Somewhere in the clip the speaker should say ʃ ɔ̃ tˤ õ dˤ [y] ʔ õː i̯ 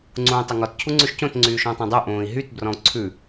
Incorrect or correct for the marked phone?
correct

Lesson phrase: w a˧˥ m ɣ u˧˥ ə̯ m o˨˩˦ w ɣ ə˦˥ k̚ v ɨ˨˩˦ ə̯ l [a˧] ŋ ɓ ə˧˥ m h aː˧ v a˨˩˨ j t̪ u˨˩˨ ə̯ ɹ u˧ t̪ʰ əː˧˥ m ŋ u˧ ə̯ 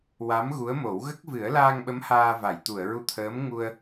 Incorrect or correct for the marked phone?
incorrect: aː˧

